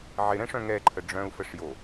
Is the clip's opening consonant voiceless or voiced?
voiced